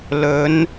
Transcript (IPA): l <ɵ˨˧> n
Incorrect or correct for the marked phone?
correct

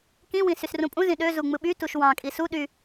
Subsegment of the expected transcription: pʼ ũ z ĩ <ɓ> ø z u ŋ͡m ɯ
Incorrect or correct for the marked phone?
incorrect: ɗ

